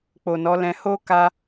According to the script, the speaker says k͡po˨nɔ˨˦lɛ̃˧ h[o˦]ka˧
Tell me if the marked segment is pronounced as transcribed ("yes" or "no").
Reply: yes